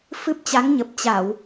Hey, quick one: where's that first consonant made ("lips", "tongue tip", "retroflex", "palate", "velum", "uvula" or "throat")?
lips